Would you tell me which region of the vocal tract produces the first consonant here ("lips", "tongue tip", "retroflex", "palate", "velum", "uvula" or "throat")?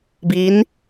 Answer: lips